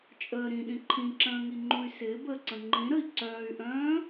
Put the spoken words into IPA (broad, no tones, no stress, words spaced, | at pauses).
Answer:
t͡ʃʼəː ɾĩɗĩ ǃʰĩǁə̃ːŋiŋ͡ǃũy̯ sɪːbəːǀə̃ ŋ͡ǃĩɾəi̯ ǀœːy̯ʔœ̃ː